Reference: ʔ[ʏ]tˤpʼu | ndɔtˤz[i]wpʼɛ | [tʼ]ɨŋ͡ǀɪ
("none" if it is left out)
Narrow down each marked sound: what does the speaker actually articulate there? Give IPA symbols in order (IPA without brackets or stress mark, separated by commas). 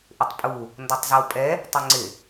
ʏ, ɨ, tˤ